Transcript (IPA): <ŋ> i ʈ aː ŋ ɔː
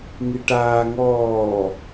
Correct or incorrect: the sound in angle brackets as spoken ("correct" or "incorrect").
correct